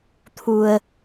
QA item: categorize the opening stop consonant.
aspirated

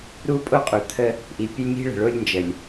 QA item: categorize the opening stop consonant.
ejective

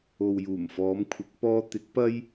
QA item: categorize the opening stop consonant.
aspirated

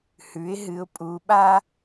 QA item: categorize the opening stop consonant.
ejective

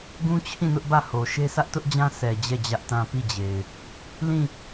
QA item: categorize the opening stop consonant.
plain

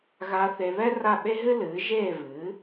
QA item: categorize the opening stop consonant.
implosive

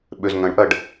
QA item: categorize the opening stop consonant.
implosive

